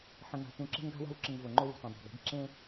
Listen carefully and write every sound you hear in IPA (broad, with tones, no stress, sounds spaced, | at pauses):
ħ ə̃˨ ŋ a̤˨ t ũ˨ ǁ e̤˦ ŋ ɡ a̤˦ w a̤˦ w ǁ ɘ˨ ŋ v o˨ ŋ͡ǃ o˦ w ṳ˨ t õ˨ dˤ a̤˨ ɡ e̤˨˦ ɡ ǁ ẽ˦